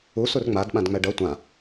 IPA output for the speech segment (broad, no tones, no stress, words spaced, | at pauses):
u surŋ͡mad ɓãdŋ͡mɛɖʌ tʷã